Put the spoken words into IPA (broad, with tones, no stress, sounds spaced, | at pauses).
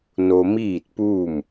n o˧ m iː˥˨ t̚ p uː˥˨ m